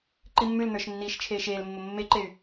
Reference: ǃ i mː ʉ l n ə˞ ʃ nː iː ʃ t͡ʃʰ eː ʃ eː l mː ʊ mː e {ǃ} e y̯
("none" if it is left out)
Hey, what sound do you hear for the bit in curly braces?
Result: ǃ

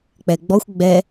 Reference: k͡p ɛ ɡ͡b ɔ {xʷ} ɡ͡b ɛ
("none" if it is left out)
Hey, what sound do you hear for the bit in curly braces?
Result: xʷ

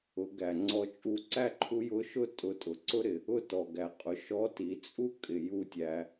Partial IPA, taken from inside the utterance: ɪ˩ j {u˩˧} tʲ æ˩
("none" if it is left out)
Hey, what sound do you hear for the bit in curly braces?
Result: u˧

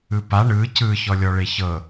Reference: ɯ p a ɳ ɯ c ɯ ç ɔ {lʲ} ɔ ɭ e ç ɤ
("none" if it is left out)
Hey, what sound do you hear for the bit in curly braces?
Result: lʲ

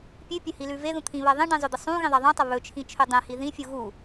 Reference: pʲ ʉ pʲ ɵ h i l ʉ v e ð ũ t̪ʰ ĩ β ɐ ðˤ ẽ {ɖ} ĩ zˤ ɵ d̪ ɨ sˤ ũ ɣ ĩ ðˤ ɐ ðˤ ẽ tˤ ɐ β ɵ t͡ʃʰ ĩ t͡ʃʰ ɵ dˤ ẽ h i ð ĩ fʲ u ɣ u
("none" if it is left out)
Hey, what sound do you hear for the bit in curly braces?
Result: ɖ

